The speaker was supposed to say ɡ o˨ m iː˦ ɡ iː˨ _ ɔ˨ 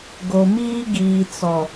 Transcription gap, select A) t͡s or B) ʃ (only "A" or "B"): A